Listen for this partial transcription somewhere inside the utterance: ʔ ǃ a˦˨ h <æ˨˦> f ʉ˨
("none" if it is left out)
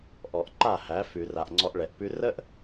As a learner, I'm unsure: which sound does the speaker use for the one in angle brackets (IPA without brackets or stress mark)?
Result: æ˨˦